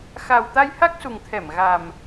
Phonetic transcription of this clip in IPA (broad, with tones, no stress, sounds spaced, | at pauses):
x a˨˩ w t̪ a˧ j h a˦˥ k̚ s u˨˩ ŋ t̪ʰ ɛ˧˩ m ɣ a˨˩ m